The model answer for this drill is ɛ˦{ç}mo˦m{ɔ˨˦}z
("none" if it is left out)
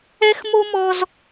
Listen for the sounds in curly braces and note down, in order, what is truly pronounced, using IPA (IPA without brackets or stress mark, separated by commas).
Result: x, ɔ˦